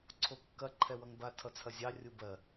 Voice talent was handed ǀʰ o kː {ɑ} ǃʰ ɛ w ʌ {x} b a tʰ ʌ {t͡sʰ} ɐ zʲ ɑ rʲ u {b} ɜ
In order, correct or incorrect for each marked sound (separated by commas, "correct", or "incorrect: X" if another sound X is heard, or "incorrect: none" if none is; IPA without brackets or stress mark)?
incorrect: ɐ, incorrect: ŋ, correct, correct